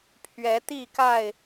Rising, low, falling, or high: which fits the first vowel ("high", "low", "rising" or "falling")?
rising